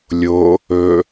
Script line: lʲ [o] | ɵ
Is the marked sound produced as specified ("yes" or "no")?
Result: yes